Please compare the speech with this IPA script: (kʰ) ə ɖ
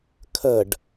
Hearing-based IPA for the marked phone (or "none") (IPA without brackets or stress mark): kʰ